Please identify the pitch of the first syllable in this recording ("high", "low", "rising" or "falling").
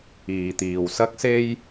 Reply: low